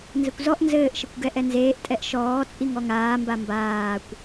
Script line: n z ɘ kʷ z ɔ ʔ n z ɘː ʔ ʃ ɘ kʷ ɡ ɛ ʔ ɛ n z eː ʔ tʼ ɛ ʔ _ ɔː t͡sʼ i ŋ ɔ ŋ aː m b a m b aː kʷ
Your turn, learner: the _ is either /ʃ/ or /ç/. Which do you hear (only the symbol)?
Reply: ʃ